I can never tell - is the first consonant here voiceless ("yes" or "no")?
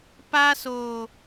yes